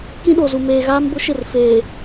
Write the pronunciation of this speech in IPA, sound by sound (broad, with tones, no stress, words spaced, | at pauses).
kĩ˦ɗo˨zu˨ meː˨ɣaː˦m bʊ˦ʃɪ˦˨r feː˨